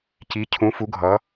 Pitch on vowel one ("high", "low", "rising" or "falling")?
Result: rising